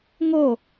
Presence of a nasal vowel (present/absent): absent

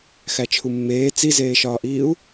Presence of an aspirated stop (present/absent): present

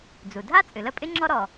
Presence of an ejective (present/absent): present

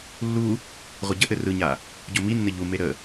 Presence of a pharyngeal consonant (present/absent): absent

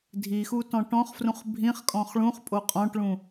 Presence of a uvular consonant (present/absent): present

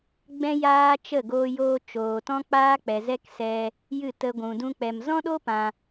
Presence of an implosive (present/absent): present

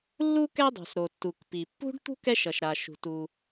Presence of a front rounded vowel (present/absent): absent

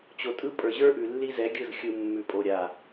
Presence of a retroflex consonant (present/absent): absent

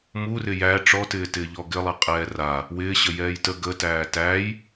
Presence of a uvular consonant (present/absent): present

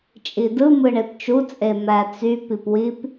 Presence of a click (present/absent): absent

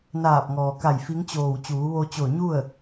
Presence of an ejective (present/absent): absent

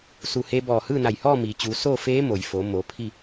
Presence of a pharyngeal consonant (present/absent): absent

